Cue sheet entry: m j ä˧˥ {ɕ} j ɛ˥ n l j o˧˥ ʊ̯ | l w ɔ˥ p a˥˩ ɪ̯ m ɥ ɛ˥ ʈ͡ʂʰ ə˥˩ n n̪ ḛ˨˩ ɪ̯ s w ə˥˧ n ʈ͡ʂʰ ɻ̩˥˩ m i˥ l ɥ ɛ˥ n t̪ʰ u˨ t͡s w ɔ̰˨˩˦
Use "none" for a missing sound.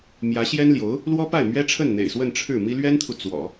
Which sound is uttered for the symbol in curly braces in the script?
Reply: ɕ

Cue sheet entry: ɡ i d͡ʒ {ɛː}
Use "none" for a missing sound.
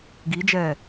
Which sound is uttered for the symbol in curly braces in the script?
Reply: ɛː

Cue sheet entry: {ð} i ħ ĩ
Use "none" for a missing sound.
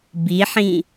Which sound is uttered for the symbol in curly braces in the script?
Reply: b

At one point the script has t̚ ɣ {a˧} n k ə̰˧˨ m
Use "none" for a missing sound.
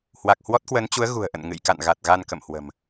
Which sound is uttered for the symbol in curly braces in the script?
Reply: a˧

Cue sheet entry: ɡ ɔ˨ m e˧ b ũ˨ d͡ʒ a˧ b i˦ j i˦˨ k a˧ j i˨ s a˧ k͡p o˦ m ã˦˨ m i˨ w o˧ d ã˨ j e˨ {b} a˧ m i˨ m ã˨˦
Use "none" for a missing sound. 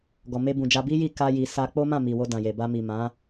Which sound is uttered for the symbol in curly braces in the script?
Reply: b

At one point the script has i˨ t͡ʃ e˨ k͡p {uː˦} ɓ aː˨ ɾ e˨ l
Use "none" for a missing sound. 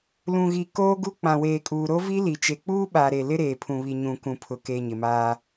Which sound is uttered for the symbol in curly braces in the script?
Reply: uː˦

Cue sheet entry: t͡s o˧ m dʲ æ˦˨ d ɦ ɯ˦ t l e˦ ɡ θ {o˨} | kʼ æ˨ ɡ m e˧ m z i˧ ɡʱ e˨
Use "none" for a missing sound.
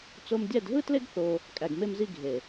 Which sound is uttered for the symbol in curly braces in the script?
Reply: o˧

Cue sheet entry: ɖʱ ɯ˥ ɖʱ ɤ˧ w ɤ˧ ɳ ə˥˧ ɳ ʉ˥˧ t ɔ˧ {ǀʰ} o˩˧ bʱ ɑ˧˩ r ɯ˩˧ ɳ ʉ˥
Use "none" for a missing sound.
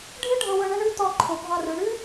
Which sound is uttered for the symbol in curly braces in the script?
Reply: ǃʰ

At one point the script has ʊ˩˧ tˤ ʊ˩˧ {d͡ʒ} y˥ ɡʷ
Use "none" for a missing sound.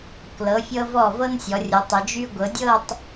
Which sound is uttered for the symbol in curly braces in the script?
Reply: d͡ʒ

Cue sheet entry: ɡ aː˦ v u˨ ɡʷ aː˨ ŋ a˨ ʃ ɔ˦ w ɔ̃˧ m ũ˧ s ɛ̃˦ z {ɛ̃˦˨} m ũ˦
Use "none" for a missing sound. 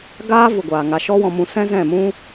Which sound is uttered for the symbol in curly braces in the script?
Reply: ɛ̃˦˨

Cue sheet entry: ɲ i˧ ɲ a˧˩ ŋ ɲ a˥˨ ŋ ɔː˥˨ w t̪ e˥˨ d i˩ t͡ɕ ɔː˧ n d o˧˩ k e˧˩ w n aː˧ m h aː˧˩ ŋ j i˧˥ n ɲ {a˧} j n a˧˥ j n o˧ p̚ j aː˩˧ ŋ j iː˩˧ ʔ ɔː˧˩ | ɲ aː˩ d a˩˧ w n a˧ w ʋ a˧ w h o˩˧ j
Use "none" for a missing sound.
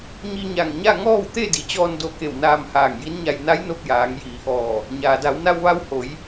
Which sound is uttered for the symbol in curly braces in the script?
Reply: a˧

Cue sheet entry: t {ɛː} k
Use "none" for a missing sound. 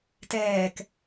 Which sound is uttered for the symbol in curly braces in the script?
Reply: ɛː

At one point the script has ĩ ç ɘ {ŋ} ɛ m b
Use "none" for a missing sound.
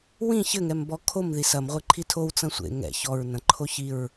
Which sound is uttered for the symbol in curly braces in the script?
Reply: ŋ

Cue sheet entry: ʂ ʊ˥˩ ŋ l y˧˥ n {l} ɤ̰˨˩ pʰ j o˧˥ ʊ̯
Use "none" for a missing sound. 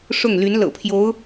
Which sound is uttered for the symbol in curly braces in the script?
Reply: l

